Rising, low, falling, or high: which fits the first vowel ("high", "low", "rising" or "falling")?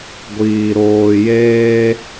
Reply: low